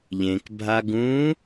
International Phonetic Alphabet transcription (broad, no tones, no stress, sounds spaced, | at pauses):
ʎ ẽ k bʱ a ɡ ũ